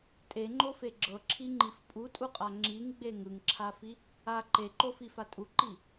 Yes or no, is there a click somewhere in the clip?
yes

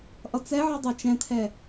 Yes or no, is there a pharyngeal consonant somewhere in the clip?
yes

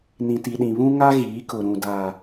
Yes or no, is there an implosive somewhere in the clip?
yes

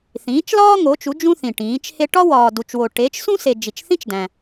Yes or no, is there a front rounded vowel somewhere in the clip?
no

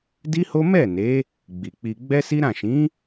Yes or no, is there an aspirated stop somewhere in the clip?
no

